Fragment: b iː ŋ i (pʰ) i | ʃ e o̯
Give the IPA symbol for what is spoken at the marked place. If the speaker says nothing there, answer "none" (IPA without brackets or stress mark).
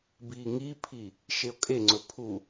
pʰ